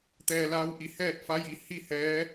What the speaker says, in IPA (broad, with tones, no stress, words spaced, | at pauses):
t̪ɛː˧laː˧˥w ʔi˩˧hɛː˥˨t̚fa˧˥ji˩ hi˥˨ hɛː˧˥